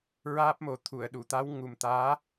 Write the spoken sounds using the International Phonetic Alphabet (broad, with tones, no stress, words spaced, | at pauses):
ɹaː˦˥p̚mo˨˩ t̪ʰu˨˩˨ə̯ɗu˨˩˨t̪a˧˥w ŋu˨˩mt̪aː˧˥